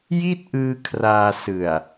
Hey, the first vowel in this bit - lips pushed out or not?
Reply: no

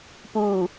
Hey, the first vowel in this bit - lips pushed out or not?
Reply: yes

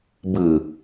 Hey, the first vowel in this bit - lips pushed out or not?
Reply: no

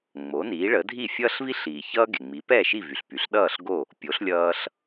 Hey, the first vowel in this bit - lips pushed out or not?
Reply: yes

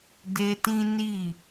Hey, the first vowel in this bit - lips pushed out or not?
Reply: no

